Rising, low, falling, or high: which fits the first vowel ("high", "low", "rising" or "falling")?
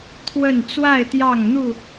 falling